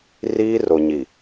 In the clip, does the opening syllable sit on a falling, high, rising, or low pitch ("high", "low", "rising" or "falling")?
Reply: high